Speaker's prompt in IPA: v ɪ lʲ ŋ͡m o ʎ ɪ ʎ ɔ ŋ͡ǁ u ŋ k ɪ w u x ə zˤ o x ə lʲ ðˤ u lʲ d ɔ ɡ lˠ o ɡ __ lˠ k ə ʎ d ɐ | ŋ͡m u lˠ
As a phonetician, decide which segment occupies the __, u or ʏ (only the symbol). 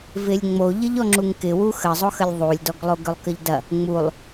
ʏ